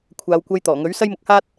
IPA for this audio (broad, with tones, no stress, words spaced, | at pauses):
kʷʰaː˨˧wkʷɐ˧jt̪ɔː˨˩ŋɵ˨˥ɥ sɐ˥jmʊ˧k̚haː˥t̚